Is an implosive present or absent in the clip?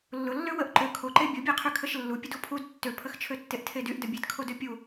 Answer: absent